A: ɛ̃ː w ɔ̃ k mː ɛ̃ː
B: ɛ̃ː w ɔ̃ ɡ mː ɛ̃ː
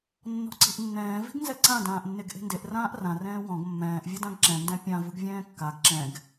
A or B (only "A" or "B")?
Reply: B